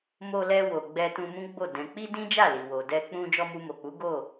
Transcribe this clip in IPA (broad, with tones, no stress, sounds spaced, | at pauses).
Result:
m o˧ l ɛ˧ w o˨ ɡ͡b ɛ˧ t ũ˧ m ũ˦ ɡ͡b o˦˨ d ɛ̃˨ k͡p i˧ d ĩ˦ d͡ʒ a˦˨ l i˨ w o˨ d ɛ˧ k͡p ũ˧ d͡ʒ ɔ˧ m u˧ m o˨ k͡p u˨˦ ɡ o˦˨